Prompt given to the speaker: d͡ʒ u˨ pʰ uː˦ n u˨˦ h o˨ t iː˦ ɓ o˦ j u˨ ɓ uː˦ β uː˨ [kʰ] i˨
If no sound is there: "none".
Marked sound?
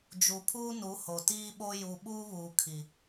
kʰ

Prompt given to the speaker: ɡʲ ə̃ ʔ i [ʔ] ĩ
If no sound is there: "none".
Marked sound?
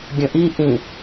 ʔ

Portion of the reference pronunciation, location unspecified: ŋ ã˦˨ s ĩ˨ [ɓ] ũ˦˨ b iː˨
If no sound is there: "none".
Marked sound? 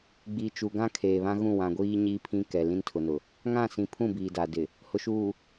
pʰ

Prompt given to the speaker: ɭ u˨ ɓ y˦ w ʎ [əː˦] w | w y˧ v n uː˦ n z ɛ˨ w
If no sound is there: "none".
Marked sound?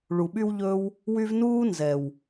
ɵː˦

